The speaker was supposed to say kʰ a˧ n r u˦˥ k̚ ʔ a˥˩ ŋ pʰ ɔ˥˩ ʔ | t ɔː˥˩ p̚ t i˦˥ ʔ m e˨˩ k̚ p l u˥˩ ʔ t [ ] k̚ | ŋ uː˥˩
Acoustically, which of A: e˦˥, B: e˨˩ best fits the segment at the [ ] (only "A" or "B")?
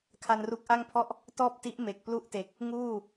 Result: B